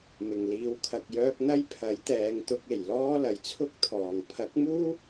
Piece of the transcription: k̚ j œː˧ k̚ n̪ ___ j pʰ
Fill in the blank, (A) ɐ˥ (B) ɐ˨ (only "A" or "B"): A